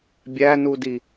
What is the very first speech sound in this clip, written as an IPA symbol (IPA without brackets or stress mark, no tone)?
bʲ